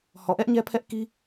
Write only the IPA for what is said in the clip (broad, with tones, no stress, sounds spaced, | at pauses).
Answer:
h ɔ˨ ʔ ɛ˦ ʔ ɲ ɛ˦ pʰ ɛ˦ ʔ k i˦